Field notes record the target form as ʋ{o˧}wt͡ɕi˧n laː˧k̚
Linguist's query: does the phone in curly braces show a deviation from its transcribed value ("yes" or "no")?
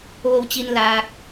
no